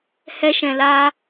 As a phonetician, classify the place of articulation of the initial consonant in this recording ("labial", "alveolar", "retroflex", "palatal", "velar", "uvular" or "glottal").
glottal